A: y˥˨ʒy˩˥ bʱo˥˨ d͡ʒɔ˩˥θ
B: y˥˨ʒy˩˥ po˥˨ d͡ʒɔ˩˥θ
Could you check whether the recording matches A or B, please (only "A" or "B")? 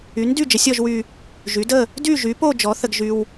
B